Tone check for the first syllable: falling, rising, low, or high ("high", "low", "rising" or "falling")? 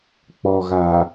low